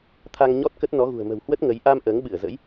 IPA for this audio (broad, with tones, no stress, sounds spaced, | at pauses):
t̪ʰ a˧ ŋ ɲ ɔ˦˥ t̚ k ə˦˥ t̚ n ɔ˨˦ ɣ ṳ˨˩ ə̯ m ə̤˨˩ w h w ə˦˥ t̚ ŋ ə˨˦ j ʔ a˧ m ʔ əː˨˦ ŋ ɓ ɨ˧˩ ə̯ z ə̰˧˥ j